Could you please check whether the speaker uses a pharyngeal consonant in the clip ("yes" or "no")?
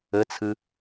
no